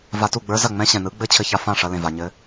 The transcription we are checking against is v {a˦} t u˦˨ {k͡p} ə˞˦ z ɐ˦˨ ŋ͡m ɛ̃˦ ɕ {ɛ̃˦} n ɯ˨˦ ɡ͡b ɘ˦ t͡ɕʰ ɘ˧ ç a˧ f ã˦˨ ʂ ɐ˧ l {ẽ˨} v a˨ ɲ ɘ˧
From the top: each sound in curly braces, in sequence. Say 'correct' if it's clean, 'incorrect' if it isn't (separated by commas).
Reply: incorrect, incorrect, incorrect, correct